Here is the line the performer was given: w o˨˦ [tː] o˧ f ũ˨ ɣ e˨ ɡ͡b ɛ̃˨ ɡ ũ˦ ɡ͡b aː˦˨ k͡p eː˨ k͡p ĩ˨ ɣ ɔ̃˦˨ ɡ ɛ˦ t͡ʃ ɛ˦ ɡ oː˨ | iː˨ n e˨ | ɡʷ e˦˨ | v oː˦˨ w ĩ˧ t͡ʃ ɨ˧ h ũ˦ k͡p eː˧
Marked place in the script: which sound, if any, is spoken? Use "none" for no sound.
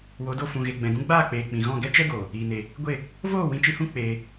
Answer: d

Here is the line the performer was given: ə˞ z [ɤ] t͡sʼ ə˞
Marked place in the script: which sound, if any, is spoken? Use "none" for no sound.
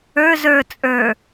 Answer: ə˞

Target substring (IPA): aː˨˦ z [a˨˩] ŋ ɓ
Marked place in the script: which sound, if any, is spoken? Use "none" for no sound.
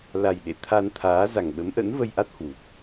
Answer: a˨˩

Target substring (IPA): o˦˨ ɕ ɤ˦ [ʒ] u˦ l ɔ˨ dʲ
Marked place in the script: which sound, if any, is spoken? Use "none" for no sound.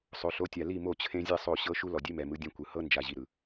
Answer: ʃ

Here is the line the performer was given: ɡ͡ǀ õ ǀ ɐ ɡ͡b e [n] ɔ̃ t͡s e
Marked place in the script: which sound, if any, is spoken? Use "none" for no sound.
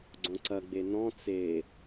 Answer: n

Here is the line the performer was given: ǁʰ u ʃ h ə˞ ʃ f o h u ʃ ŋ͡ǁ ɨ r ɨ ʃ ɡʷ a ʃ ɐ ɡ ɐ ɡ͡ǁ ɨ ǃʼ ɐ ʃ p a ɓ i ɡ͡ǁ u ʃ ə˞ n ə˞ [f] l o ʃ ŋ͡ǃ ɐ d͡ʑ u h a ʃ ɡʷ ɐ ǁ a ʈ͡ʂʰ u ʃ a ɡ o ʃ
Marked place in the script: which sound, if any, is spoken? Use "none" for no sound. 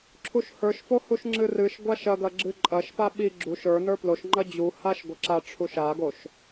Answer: p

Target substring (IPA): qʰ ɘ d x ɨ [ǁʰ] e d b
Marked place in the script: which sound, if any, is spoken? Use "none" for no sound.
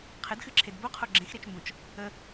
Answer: ǁʰ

